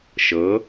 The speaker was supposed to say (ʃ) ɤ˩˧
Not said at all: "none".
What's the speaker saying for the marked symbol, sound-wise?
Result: ʃ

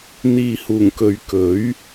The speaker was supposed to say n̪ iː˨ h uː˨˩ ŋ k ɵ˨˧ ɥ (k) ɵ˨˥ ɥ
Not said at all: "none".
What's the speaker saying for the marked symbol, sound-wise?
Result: k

